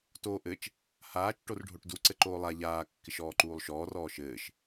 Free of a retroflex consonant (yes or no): no